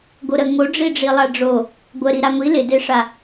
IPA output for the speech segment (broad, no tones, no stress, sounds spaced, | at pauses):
ɡ o ɾ ə ŋ o ɖ͡ʐ i ɖ͡ʐ i lˠ a ɖ͡ʐ o | ɡʷ ə ɾ i ɾ a ŋʷ i l ɪ d e ʂ a